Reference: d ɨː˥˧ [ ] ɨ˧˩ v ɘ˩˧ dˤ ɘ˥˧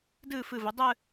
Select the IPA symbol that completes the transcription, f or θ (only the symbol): f